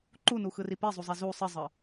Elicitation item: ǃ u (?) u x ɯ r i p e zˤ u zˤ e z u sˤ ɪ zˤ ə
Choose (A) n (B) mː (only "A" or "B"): A